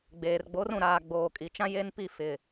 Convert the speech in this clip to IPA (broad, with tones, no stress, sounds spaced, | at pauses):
ɡ͡b eː˨ r ɡ͡b o˨˦ r ũ˨ ɾ aː˨ ɡ͡b oː˨ kʼ i˨ t͡ʃ ã˦ j e˦ n p i˦˨ f ɪ˨